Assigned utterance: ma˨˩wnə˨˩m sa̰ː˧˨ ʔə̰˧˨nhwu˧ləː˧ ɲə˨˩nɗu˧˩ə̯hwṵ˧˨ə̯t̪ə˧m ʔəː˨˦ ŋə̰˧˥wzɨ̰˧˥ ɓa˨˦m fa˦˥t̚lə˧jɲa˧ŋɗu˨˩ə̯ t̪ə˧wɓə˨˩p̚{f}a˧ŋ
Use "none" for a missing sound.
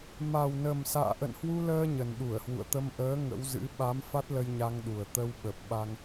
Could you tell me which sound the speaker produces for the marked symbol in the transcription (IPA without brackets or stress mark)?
ɓ